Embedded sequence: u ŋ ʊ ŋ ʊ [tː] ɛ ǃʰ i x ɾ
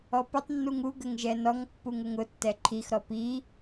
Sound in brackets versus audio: correct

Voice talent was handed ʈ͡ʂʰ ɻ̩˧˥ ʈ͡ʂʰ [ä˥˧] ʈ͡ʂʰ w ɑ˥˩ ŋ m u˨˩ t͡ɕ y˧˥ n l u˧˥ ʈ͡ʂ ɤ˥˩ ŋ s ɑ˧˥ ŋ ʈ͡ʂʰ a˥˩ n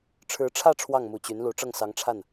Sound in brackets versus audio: correct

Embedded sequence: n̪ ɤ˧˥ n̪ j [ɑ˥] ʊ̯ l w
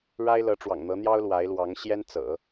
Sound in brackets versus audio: correct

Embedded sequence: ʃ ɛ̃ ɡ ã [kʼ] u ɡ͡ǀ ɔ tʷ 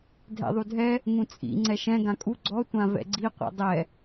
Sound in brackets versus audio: correct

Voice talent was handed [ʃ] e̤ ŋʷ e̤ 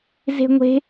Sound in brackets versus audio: incorrect: z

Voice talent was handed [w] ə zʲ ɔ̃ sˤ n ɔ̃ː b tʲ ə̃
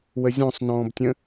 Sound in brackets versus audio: correct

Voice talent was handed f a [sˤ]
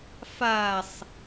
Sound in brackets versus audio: correct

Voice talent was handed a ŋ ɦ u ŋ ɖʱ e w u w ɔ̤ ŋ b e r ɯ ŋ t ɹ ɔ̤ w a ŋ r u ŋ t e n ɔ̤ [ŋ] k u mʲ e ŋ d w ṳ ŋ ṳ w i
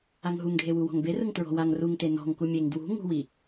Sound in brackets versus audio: correct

